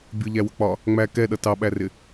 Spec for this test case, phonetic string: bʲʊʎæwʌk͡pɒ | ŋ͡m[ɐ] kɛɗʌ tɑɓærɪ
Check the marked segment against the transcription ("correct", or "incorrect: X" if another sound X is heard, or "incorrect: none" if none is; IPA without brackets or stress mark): incorrect: æ